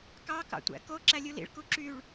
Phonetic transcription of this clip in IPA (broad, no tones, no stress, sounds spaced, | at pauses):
k ɑ k ɑ̰ tʷ æ̰ k o ǁ æ lʲ u l ḭ ɭ k u ǁ y ɭ